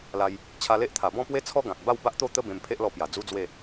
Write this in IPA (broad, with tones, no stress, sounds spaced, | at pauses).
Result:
l a˧ j | t͡ɕʰ a˧ l e˦ ʔ t̪ʰ a˨˩ b ɔ̃˥˧ p w e˦ t͡sʰ ɔ˦ ɡ ã˨ k̚ b a˥˧ w b a˦ ʔ t̪ o˥˧ t̪ ə˦ b ẽ˧ m pʰ e˦ ʔ l ɔ˧ p j a˨˩ d͡z u˦ d͡z w e˥˧